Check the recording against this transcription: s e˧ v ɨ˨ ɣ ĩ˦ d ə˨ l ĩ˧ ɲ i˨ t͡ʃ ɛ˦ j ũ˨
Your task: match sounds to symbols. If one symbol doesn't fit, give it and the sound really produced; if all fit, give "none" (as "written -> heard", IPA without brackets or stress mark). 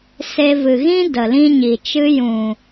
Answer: ɛ˦ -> ɨ˦